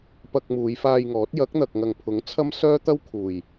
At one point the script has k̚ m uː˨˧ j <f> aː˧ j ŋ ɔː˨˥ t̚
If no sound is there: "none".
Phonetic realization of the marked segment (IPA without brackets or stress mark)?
f